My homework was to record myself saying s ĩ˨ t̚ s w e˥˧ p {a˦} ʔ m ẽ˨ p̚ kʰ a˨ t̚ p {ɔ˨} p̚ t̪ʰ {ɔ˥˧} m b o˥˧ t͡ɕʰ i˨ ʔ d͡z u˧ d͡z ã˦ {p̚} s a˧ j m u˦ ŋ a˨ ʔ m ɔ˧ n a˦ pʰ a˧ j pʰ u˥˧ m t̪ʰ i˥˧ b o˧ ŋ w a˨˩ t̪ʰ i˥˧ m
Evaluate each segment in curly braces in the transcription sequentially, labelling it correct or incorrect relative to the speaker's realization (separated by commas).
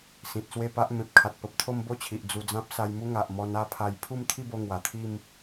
correct, incorrect, incorrect, correct